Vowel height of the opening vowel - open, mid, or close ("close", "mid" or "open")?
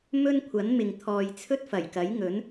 mid